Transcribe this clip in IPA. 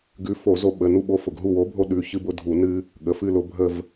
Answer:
ɡ ʉ˨˥ f o˧˩˧ z o˦ ɓ ə˩˧˩ n u˦˨ ɓ o˨˥ f ʊ˩ ɡ ɦ u˦˨ w o˨˥ bʱ o˦ ɗ ʉ˩˧˩ ç ɨ˦ b ʊ˦ dʱ u˧˩˧ n ɨ˦ | ɠ ə˩˧˩ f ɨ˦˨ l ʊ˧˩˧ bʱ ə˦˨ v

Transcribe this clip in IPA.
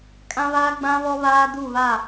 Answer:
kʼ ã˦ β aː˦ ɡ͡b ã˦ β ɔ˦ β aː˦ d u˦˨ β a˦˨

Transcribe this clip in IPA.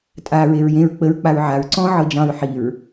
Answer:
tʼ a ɹ e ɹ j ẽ ɹ k͡p ə ɹ k͡p a ɹ ʕ a ɹ ǀ ɔ̃ ʕ ɤ d͡ʒ ɑ̃ ɹ ħ i ɹ

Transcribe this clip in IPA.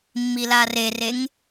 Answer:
mː i l a r e r e ŋ

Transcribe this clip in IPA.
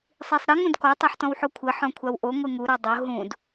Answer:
sˤ i sˤ ɾ ɘ ŋ ũ d k ɔ tˤ ɛ ħ t ɔ̃ w ħ o kʷʰ ɘ ħ ɔ̃ kʷʰ a w ʔ o ŋʷ ɨ ŋ u ɾ ɔ dˤ o ɦ ũ d

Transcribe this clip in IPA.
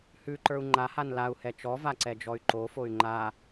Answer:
h ʉ ǃ ə˞ u̯ ŋ͡ǃ a h a n l a u̯ h ɛ t͡ʃ ɔ v a ǀ ɛ d͡ʒ ɔ y̯ ǃ o f o y̯ ŋ͡ǃ a

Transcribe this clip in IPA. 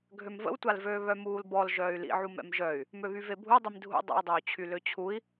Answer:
ɡʱ ø m v ə̰ w tʷ a l v øː β œ m uː l b ɔ l ʒ œː y̯ l ḭ ʕ u m ɛ̰ m ʒ œ y̯ | m ø β y v e bʱ u dˤ i m dʱ ṵ dˤ o̰ i̯ dˤ oː t͡ɕʰ y l ø t͡ɕʰ u i̯

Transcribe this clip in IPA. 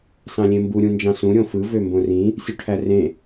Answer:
s ɑ̃ lʲ ẽ m b u ɾʲ ũ n d͡ʒ ɑ̃ s ũ ɾʲ õ f ɯ v ø m b õ r ĩ | sʲ u ʈʰ æ r ẽ

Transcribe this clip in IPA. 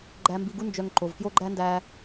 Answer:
ɡ͡ǃ æ˧ m b i˧ ɡ u˦ n d͡ʒ œ˧ ŋ ǃ o˨ v k j o˦ ɡ͡ǃ æ˦ n d æ˧

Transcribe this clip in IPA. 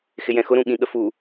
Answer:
x ɪ j ɛ̃ x ʊ ɾ ũ ɠ ĩ ɠ ə f u

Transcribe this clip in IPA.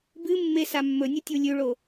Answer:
b ɨ mː e s a mː ɵ nʲ ɨ tʲ u lʲ ʉ ɭ o

